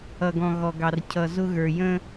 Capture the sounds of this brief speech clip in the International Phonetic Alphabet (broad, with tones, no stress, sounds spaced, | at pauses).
ʌ˨ ɡ ɔ̃˨ ɣ ɔ˨ ɡ ɑ˨ r cʰ ʌ˨ z ʊ˦ ɣ ə˞˨ j ə̃˦